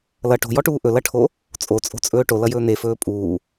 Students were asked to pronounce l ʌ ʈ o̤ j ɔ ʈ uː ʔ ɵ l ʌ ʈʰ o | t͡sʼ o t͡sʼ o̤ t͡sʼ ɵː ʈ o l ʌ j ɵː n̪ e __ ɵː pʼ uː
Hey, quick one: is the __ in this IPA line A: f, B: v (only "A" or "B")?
A